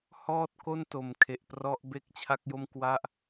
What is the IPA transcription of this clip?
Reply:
h ɔː˥˩ t̚ k o˥˩ n t o˨˩ m kʰ e˨˩ ʔ p r ɔ˦˥ ʔ b e˥˩ k̚ t͡ɕʰ a˥˩ k̚ j o˥˩ m k w a˥˩ ʔ

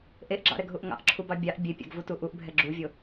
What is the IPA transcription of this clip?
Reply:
ʔ e ʔ ɡ͡ǁ ɑ̰ ɾ ɛ ɡ ɦ u ʔ ŋ ɑ̰ ʔ ǁʰ u b ɑ bʲ ɑ ʔ bʲ e pʲ ɑ̰ ɡ v u t u ʔ u ʔ bʱ ɛ ɡ͡ǁ u vʲ o

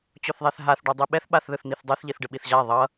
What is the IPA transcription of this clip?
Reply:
t͡ɕ o θ ðˤ ɛ θ ɦ a θ ɖ o dˤ i ɓ ɛ θ ɓ a θ ð ɯ θ n̪ i θ dˤ e θ ʎ i θ ɖ ɯ ɓ i θ ʑ a ðˤ ʌ

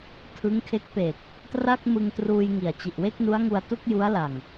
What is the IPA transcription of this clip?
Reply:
tʰ ɯ˦˥ ŋ kʰ e˦˥ k̚ p e˨˩ k̚ | t r a˥˩ k̚ m ɯ˧ ŋ t r uː˧ j ŋ i˨˩ a̯ t͡ɕ i˨˩ ʔ w e˥˩ k̚ n u˦˥ a̯ ŋ u˧ a̯ t u˥˩ k̚ j u˦˥ a̯ l a˨˩ ŋ

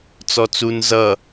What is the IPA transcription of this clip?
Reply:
t͡s ɔ t͡s u n z ʌ

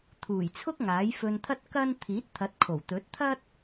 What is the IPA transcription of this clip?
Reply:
t̪ʰ uː˨˩ j t͡sʰ ʊ˥ k̚ ŋ aː˨˥ j f ɵ˧ n t̪ʰ ɐ˥ t̚ k ɐ˥ n t̪ʰ iː˨˥ t̚ t̪ʰ ɐ˨˥ t̚ kʰ o˨˩ w t̪ ɵ˨˥ t̚ t̪ʰ ɐ˥ t̚

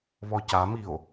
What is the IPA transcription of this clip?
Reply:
β ɔ c a m i o̯

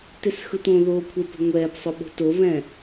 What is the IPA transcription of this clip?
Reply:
t e s x ɯ t̪ õ ð oː kʷʰ e p o̤ ŋʷ ɛː p sˤ o ɓ o̤ t o β ɛ̃

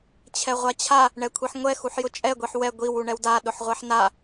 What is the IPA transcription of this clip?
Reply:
t͡ɕʰ ɛ ʁʷ a t͡ɕʰ a | ɳ ɛ kʷʰ i ħ ŋʷ ɛ x u ħ j ʊ t͡ʃʼ ɛ ɡʷ i ħ w ɛ ɡʷ i w u ɳ ɛ w d a ɗ ʊ ħ ʁʷ ɛ ħ n a

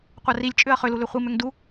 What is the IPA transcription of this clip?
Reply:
qʷ a r i lʲ t͡ʃʼ ʏ ɐ̯ χ ʏ l u l ʏ χʷ i m ʏ ŋ d u

